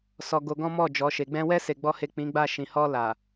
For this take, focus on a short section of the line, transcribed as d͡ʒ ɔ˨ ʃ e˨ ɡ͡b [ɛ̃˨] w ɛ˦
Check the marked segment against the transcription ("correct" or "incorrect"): incorrect